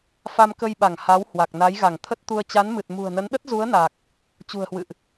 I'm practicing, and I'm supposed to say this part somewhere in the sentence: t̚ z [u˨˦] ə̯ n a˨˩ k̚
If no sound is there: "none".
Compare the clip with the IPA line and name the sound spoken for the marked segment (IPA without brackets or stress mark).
u˨˦